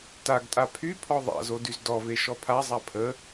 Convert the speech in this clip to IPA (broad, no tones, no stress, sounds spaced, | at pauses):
t a ɡ tʼ a pʰ y pʰ ɔ ðˤ a̰ z o d y z d ɔ v e ʃ ɔ pʰ a zˤ a pʰ ə